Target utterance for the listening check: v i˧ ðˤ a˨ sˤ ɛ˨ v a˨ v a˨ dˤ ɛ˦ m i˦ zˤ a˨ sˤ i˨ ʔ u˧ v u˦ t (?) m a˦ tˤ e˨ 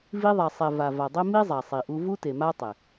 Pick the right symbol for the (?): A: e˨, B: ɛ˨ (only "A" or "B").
A